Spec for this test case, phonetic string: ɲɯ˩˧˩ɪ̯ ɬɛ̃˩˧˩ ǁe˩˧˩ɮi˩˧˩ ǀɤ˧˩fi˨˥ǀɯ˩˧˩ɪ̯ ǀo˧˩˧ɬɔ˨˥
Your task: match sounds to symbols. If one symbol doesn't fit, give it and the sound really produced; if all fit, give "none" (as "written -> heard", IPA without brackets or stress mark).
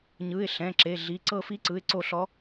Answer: none